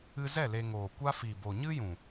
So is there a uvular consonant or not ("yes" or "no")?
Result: no